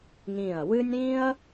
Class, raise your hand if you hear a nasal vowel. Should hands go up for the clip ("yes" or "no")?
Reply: yes